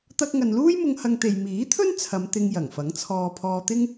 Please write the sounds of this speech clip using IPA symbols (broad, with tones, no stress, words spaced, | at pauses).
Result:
t̪ɐ˧k̚ŋɐ˨nluː˥jmʊ˧ŋ hɐ˧ŋt̪e˨j miː˨˥t̪ʰɵ˥n t͡sʰɐ˨˧mt̪ɪ˧ŋ jɐ˨˩ŋfɐ˨˥ŋt͡sʰɔː˧ pʰɔː˧t̪ɪ˥ŋ